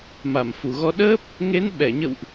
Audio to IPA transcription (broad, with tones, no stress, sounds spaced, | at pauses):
m a˧˩ m f u˧˩ ɣ ɔ˧ ɗ əː˦˥ p̚ | ŋ e˨˦ n ɓ ɛ˧˩ ɲ ə̰˧˨ w ʔ